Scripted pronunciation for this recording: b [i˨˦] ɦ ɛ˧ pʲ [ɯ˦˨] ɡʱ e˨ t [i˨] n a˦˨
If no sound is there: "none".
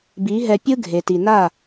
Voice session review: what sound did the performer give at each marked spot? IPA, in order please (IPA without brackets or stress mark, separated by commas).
i˨˦, ɯ˦, i˨